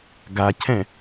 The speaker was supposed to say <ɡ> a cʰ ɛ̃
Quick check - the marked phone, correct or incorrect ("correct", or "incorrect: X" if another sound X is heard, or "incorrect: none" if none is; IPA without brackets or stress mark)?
correct